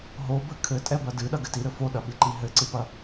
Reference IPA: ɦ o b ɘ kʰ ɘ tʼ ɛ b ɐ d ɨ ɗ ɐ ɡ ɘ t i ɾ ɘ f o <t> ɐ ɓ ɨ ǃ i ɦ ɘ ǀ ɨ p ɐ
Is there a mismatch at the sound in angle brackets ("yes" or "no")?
yes